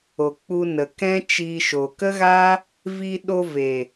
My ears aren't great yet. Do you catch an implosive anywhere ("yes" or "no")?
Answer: yes